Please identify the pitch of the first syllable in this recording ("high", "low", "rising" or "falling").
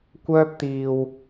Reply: high